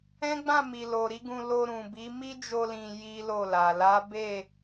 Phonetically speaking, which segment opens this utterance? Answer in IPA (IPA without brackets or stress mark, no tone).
ɛ̃